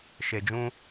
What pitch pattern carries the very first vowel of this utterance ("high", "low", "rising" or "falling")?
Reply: low